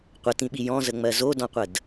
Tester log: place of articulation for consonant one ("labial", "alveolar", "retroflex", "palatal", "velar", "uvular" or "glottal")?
uvular